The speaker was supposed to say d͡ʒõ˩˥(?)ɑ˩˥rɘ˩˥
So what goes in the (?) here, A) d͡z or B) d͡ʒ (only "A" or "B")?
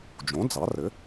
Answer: A